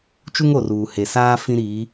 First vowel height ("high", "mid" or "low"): high